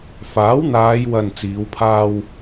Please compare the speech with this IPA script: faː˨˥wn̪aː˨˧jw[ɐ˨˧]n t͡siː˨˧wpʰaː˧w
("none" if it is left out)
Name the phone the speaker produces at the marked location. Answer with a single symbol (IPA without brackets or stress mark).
ɐ˨